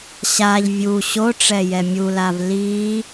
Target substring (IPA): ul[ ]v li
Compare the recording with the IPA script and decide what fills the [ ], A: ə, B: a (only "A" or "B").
B